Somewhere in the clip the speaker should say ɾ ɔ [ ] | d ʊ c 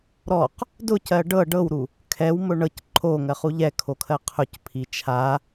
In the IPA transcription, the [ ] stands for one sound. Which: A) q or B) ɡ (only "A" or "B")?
A